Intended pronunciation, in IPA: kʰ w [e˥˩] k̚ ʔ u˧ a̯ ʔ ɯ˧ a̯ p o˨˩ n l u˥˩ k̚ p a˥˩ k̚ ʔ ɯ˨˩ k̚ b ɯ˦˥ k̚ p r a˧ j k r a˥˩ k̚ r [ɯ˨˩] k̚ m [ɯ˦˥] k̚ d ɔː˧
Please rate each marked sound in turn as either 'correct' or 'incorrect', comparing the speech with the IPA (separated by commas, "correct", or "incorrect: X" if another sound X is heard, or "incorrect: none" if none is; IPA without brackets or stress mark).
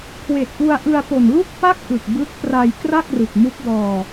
incorrect: e˨˩, correct, incorrect: u˦˥